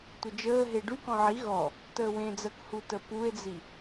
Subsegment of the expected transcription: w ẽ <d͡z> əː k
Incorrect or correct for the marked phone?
correct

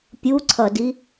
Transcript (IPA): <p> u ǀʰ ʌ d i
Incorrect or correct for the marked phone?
incorrect: pʲ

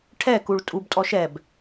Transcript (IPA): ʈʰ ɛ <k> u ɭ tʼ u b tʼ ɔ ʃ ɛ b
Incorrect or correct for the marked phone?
correct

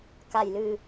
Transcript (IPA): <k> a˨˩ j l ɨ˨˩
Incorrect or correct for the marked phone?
correct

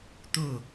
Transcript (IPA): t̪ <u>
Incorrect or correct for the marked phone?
incorrect: ʊ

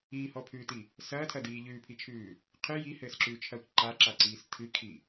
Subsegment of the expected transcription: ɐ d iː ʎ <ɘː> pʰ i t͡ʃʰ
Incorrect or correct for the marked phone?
incorrect: ʉː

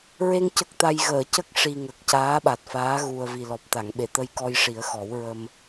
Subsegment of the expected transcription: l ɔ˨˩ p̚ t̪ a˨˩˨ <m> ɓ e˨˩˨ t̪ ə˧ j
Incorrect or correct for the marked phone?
incorrect: ŋ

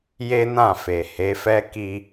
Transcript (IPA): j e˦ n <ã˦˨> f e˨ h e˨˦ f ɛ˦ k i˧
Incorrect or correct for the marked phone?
correct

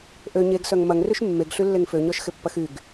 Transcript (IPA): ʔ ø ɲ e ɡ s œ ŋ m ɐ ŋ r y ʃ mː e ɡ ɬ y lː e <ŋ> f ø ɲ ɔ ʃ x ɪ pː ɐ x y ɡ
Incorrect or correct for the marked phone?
correct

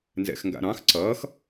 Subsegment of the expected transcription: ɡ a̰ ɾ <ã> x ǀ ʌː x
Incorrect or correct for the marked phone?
incorrect: ɑ̃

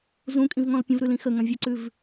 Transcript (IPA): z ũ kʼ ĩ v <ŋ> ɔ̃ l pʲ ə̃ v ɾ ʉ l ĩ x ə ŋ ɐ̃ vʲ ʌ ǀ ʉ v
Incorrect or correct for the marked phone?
correct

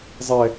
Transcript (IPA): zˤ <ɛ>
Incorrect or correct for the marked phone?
correct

